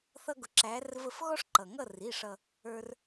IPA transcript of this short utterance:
θ ʌ˦ ɡ ʊ˨˦ ǁ æ˨˦ r v ə˦˨ f ɣ ɔ˦ ʂ ǃ ʌ˩ ŋ ʌ˦˨ r i˩˧˩ ʂ ʌ˦˨ | ə˞˦ r

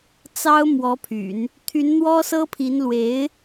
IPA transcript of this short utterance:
t͡s ɑ˥ ʊ̯ m w ɔ˧˥ pʰ y̰˨˩˦ n | t̪ʰ y˧˥ n n̪ w ɔ˥ s ɤ˥ pʰ i˧˥ n l w e˧˥ ɪ̯

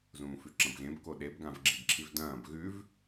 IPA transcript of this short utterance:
z ũː f ʉ ǁ ɐ̃ b ɣ ẽ b k o ɗ e b ɡ ã v ɡ͡ǁ i b ǁʰ i v d ɐ̃ː b ɣ ʉ v

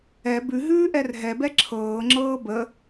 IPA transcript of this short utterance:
ɛ b ʉ ɦ ʉː ʔ ɛ r ɦ ɛ b ɛ ǁʰ ɤː ŋ͡ǁ ɤː b ə

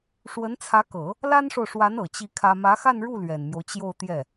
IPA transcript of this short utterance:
ʂ w ə˧˥ n t͡sʰ ä˧˥ k ɤ˨˩˦ | l a˥ n ʂ o˨ ʊ̯ ʂ w a˧˥ n ɤ˨˩ t͡ɕ i˥˩ kʰ ä˥ m ä˧˥ x a˥˧ n ɻ u˥˩ l ɥ ɛ˨˩ n m j o˦ ʊ̯ t͡ɕ j o˥˧ ʊ̯ t̪ j ɛ˥˩

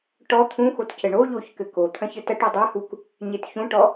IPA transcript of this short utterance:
ʈ ɔ t̪ʰ ũ x o t c ɘ ɳ o ʎ o ç k ɘ k o t̪ʰ ɐ̃ ç ɘ t ɐ ʈ u dˤ ɐ h u k | ɲ e t ç ũ ʈ ɔ

